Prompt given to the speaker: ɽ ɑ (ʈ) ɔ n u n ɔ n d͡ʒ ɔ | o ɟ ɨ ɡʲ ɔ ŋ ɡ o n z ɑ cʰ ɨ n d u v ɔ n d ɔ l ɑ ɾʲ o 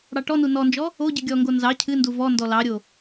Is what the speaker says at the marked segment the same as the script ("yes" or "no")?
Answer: yes